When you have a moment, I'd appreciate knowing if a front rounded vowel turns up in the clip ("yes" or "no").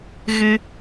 no